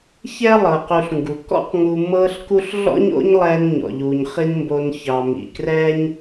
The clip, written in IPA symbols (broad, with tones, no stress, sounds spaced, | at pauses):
ç ɛ˥ lˠ ɤː˩ q u˨ ɬ ŋ ɡ u˩ k ɔ̰˦ q ŋ u˨ m ɤː˦ ɬ k u˦ ɬ ɮ ɔ̰˥ ɲ o̰˥ ɲ lˠ ɛː˦ n ɲ ɔ̰˩ ʎ uː˩ ɲ χ i˦ n m b o˨ n ç ɑ˩ m ḭ˩ k r ɛː˦ ɲ